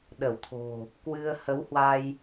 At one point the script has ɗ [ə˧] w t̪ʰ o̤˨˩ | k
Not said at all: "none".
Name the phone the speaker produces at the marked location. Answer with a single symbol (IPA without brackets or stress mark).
ə˧˩